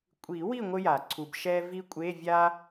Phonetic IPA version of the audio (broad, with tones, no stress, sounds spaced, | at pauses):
kʷʼ i˨˩˦ w i˦˨ ŋʷ ɘ˥ j a˨˩˦ ǀʰ u˨ b ʃ ɛ˥ v i˥ kʷʼ e˧˥˧ vʲ a˥